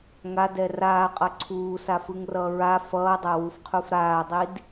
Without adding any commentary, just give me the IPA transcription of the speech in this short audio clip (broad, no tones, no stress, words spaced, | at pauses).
ŋadɛ raːqʼʌ ǀʰuːsafɯŋrʌː ɹa fʌːdˤawufqʰuf ɾaːdˤid